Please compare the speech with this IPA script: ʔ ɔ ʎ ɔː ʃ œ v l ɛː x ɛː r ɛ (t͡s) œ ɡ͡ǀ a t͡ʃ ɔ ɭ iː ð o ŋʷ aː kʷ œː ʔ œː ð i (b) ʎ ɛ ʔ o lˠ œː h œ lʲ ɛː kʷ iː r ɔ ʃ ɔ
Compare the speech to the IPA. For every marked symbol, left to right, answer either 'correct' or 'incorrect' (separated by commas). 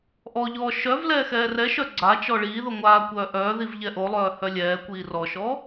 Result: incorrect, incorrect